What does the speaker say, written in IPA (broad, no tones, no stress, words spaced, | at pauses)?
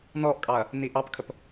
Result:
nɔʔkʼɑɐ̯ | niʔɑpkʰəp